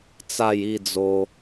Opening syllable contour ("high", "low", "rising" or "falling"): falling